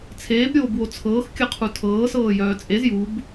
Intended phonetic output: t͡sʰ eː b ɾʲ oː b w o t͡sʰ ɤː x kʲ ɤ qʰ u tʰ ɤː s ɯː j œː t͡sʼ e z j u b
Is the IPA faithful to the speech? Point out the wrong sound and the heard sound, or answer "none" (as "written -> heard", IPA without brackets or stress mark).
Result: ɯː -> ɤː